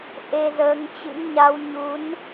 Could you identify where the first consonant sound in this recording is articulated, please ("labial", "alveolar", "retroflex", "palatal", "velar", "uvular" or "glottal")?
glottal